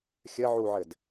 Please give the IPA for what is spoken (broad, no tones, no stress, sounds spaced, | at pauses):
xʲ ɘ ʕ u ʕ ɘ d